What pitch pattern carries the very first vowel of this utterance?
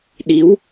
rising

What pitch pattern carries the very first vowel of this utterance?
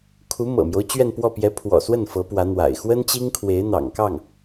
rising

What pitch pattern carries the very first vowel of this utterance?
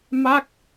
falling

